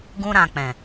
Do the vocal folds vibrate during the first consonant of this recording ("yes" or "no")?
yes